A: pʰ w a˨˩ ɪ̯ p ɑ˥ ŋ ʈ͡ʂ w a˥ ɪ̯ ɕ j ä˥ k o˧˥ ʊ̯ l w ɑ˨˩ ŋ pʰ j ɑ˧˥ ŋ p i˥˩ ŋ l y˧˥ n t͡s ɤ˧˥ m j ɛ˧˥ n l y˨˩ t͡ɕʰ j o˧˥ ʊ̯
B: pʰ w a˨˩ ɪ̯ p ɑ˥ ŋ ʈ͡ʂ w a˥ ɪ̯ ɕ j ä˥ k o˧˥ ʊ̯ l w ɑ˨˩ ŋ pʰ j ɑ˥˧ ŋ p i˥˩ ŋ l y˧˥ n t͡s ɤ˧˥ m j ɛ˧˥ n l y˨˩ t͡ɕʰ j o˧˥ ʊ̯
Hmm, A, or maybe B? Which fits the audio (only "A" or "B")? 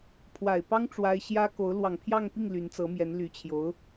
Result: B